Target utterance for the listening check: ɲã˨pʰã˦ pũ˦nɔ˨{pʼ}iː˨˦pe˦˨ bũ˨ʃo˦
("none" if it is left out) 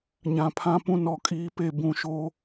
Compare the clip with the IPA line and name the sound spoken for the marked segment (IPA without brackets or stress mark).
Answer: kʼ